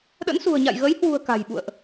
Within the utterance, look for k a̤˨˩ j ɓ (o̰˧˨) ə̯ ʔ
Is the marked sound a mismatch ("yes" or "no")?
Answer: yes